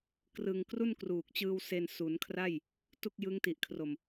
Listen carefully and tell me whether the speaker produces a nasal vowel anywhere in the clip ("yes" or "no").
no